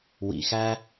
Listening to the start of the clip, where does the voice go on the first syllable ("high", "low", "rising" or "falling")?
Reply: low